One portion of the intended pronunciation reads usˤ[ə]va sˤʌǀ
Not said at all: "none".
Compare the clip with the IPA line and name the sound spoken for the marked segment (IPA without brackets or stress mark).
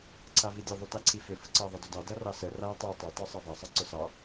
ɑ